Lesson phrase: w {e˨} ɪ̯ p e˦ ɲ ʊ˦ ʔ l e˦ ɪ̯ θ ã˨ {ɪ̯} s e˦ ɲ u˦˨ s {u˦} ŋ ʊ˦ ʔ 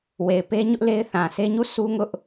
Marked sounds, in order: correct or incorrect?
correct, incorrect, correct

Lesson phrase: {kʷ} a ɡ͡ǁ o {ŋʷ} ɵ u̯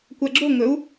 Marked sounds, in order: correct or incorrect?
correct, incorrect

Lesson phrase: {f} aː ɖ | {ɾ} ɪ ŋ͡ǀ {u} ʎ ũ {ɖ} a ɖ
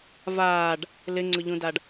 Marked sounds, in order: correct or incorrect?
incorrect, incorrect, incorrect, incorrect

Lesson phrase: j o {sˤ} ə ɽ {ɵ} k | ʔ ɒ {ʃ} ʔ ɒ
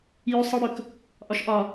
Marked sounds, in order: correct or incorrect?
correct, correct, correct

